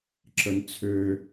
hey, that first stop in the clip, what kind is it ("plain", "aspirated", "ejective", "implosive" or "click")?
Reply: click